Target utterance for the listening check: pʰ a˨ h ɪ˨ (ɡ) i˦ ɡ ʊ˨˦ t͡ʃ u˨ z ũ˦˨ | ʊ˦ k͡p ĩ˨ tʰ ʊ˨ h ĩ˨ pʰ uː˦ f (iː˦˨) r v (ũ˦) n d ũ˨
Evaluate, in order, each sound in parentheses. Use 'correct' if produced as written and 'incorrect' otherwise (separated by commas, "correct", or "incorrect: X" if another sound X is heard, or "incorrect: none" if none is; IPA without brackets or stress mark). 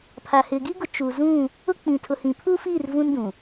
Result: correct, correct, correct